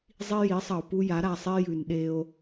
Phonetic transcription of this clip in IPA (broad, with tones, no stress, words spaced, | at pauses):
zˤi˦ji˨˦sˤɐ˨o̯ pu˦ja˨˦ ɾa˨sˤe˦jʉ˨n ɗe˦o̯